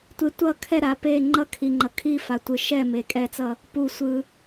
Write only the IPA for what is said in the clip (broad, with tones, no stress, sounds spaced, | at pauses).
tʷ e˨ tʷ ʌ˦˨ kʰ ɛ˦˨ ɾ a˨ p e˦˨ ŋ͡ǃ ʌ˦˨ kʰ i˨ ŋ͡ǃ ʌ˨ kʰ i˦˨ f a˨ tʷ ɯ˨ ʃ ɛ˦˨ m e˨ kʼ ɛ˦˨ t͡s ʌ˦˨ | p u˨ sʷ ɯ˨